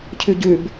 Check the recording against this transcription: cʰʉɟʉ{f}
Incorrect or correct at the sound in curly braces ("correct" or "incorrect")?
incorrect